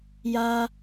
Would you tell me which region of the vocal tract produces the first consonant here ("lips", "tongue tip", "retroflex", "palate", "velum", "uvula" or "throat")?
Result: palate